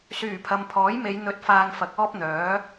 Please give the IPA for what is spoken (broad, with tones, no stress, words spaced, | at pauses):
syː˨˩pʰɐ˨mpʰɔː˨˥jme˨˧j n̪ɵ˨˥t̚faː˨ŋ fɐ˨˥k̚ɔː˥p̚n̪œː˨˥